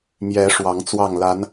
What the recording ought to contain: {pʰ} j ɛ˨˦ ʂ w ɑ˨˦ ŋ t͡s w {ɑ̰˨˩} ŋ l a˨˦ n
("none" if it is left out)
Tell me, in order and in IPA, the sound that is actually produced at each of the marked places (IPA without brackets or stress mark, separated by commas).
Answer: m, ɑ˥˨